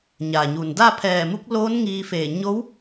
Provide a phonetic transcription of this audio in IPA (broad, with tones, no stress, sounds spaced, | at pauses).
ɲ a˩ ɲ u˩ n d a˥˨ pʰ ɛː˧˩ m u˧˥ k̚ l oː˧˥ n ŋ iː˧ f eː˧˩ ɲ o˧˥ w